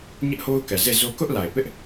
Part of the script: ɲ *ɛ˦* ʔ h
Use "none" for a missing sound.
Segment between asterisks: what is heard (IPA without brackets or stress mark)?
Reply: ɪ˦